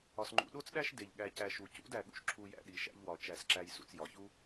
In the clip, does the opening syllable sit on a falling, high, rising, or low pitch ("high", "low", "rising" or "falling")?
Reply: low